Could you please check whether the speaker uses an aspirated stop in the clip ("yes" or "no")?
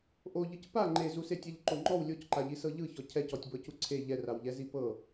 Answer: yes